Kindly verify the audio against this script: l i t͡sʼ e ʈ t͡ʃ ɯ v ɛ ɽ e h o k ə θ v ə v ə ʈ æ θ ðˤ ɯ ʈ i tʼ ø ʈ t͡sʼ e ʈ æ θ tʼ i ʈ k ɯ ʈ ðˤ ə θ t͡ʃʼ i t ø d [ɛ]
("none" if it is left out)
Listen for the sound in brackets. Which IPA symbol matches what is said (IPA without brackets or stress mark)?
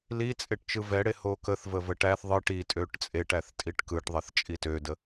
ə